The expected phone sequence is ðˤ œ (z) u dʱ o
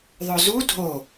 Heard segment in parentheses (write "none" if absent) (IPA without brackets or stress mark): z